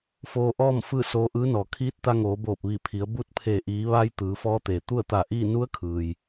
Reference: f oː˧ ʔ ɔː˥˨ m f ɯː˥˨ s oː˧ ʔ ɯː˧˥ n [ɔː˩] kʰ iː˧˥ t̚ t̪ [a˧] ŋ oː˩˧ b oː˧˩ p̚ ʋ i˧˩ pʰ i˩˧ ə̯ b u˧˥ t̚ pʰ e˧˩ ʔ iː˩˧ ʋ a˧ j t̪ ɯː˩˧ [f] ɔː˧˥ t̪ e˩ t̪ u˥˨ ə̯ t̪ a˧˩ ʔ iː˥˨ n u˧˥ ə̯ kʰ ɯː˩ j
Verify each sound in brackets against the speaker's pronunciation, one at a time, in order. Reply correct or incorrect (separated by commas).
correct, correct, correct